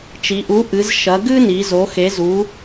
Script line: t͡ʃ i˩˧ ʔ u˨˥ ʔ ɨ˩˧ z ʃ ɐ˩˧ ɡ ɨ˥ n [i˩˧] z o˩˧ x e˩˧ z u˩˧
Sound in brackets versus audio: correct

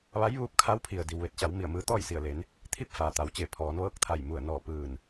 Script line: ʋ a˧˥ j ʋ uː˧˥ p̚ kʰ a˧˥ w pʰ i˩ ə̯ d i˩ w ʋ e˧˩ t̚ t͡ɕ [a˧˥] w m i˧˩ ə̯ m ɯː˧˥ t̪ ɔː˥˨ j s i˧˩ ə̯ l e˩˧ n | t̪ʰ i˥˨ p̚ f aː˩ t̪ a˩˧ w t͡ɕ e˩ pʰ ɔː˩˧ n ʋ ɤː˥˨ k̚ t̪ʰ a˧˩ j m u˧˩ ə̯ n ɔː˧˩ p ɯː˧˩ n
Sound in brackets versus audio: incorrect: a˩˧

